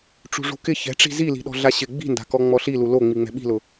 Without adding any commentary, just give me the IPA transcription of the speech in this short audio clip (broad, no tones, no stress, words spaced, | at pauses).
ʈ͡ʂṳʐṳkɪ çɛ̤ʈ͡ʂi̤ zili̤ɗɔ̤ ɮaɕɪ ɡ͡bi̤nda̤kɔ ŋ͡mɔɬilu lo ŋ͡miŋ͡mɛ̤ɓi̤lʊ